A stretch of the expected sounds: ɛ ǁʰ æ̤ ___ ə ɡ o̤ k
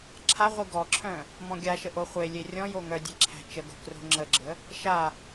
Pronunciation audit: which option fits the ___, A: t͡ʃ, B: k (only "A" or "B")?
A